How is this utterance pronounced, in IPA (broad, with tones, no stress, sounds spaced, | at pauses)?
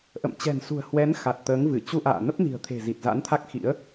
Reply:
ʔ ə̰˧˨ m t͡ɕ ɛ̤˨˩ n s ṳ˨˩ ə̯ h w ɛ˨˦ n x a˨˩ t̚ t̪ əː˨˦ ŋ v ɨ˧˩ t͡ɕ u˧ ʔ a̰ː˧˨ n ə˦˥ p̚ n i̤˨˩ ə̯ t̪ʰ e̤˨˩ z i˨˩ t̚ z a̰˧˥ n t̪ʰ a˦˥ k̚ x ḭ˧˥ ə̯